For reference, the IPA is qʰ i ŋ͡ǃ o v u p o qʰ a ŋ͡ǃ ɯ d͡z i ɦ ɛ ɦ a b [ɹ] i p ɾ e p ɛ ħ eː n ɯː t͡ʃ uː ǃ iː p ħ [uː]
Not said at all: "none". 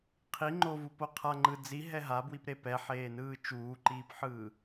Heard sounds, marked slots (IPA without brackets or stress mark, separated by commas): w, ɯː